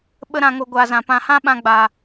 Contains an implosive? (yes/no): yes